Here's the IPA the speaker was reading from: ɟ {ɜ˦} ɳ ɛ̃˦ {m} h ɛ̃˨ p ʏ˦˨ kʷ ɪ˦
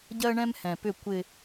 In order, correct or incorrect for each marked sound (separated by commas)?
correct, correct